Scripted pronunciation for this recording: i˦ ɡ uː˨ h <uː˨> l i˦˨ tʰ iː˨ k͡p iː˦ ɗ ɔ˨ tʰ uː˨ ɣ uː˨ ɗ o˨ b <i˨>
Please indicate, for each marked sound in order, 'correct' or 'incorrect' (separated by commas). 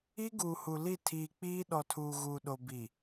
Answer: incorrect, correct